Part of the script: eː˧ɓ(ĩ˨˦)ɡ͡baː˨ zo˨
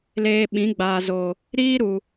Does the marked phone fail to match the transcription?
no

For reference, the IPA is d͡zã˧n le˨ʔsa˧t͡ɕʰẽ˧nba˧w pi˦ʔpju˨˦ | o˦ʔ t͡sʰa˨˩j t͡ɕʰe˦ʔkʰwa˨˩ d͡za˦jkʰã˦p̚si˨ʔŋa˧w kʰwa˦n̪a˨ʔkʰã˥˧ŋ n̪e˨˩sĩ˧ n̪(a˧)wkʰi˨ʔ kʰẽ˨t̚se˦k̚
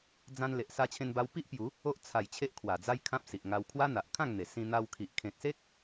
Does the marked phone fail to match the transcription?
no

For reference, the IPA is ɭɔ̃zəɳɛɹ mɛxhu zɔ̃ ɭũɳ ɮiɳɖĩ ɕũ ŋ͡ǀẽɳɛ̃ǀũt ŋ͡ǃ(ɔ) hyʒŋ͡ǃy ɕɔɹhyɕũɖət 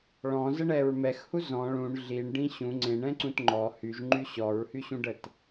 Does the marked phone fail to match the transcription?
no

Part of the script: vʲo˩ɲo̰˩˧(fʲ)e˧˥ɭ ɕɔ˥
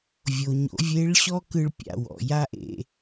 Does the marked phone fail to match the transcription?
yes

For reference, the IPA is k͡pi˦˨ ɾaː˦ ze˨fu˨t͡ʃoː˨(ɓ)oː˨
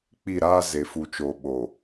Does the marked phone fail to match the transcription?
no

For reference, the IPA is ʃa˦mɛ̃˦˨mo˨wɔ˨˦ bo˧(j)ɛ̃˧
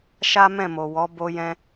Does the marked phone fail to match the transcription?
no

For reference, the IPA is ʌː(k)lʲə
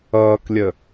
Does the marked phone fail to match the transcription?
no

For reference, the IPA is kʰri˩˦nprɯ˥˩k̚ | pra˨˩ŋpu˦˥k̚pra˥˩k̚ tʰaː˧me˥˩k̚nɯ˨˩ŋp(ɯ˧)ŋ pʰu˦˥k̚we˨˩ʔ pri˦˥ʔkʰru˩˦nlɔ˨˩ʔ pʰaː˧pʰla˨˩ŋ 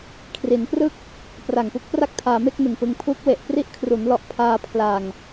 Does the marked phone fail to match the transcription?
no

